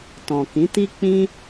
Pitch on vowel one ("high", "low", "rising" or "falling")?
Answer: low